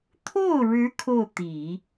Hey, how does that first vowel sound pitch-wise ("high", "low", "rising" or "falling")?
falling